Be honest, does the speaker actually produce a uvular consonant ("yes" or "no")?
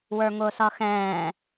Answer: no